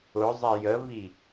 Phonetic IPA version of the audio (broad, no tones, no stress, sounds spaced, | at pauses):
ʊ zˤ ɛ j ə v i